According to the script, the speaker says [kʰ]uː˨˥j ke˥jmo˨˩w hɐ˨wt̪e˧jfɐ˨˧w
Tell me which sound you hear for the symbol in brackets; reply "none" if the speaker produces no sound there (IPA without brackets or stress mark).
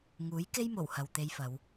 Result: ŋ